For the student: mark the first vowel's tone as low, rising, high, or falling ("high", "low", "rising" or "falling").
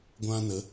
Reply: high